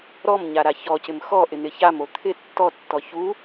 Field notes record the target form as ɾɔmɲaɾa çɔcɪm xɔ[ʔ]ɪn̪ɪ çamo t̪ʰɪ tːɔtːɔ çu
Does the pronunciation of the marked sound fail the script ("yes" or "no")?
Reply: no